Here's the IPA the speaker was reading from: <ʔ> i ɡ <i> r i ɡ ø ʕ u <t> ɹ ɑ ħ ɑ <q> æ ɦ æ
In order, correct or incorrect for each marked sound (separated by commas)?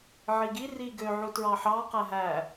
incorrect, correct, correct, correct